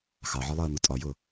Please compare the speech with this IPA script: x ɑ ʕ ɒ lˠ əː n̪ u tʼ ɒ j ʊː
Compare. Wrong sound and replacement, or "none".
none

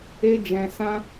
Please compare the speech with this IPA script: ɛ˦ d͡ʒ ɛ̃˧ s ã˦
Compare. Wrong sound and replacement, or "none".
ɛ˦ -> e˦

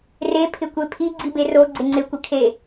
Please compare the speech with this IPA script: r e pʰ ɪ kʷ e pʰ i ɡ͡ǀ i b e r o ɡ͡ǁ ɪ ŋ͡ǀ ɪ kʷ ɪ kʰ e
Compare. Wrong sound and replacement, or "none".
ɡ͡ǁ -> ɡ͡ǀ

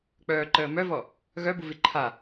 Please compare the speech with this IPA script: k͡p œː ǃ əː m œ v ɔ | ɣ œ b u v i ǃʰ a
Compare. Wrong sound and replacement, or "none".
none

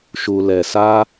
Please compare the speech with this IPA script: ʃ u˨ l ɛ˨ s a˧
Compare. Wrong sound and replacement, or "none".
none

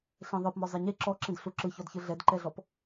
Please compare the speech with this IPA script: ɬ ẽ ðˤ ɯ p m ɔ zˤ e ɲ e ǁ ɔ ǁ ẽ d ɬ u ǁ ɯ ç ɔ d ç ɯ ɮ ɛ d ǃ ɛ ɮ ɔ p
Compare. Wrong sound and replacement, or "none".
none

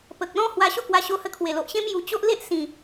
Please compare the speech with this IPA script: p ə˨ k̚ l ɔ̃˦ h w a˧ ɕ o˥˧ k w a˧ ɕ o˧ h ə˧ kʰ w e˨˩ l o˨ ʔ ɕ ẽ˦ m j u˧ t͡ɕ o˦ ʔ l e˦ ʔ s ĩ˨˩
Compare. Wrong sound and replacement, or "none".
none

